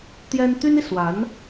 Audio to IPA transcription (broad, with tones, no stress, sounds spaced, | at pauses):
t̪ j ɛ˥ n t̪ y˥ n i˨ s w a˧˥ n